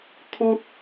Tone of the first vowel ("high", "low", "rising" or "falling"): high